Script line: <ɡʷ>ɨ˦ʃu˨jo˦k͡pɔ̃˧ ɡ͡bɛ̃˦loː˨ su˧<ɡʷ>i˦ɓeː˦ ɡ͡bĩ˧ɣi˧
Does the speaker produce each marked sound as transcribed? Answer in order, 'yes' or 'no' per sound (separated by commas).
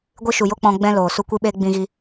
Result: yes, no